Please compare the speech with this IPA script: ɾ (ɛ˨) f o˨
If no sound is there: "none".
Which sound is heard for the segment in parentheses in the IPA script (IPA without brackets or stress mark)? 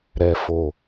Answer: ɛ˨